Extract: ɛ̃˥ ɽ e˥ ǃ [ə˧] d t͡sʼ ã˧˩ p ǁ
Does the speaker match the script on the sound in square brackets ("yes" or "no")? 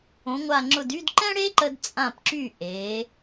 yes